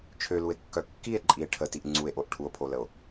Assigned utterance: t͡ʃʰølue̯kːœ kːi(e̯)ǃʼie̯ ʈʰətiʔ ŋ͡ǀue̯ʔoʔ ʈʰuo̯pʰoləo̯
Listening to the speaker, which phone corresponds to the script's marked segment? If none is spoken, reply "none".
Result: e̯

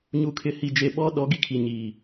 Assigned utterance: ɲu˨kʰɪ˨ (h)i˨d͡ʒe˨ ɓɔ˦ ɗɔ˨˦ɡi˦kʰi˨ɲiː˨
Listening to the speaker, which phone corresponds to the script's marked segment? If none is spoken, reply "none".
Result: h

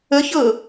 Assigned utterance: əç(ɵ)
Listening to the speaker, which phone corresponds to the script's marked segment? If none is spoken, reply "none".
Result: ɤ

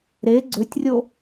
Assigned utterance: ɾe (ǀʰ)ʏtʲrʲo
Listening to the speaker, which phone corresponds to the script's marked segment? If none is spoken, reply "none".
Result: ɡ͡ǀ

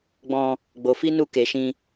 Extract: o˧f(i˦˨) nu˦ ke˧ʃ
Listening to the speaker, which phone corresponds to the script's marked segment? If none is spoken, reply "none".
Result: i˦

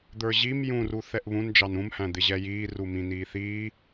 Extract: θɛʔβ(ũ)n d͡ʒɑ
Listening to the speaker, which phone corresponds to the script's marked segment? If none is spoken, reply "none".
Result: ũ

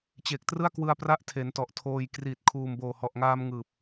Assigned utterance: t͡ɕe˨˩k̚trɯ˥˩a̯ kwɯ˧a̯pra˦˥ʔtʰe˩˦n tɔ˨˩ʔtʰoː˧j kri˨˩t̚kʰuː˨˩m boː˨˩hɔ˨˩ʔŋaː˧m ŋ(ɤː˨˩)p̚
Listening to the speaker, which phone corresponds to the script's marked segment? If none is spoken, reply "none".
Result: ɯː˨˩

